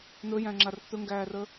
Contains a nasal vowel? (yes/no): yes